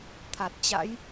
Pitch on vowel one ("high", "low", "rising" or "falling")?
low